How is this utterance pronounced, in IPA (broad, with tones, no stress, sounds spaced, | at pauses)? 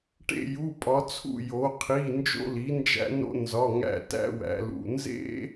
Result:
ʈ ḛ˧˩ j u˩˧˩ pʼ ɒ˩˧ t͡sʰ ṵ˧˩ j o˩˧ qʰ i˩˧˩ n d͡ʒ o̰˦ l i˩˥ n d͡ʒ æ̰˦ n o̰˦ n z ɒ˩˧˩ ŋ æ̰˧˩ t æ̰˦ w æ̰˩˧ l ṵ˩˧˩ n z ḛ˦